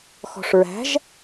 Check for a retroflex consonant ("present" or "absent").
present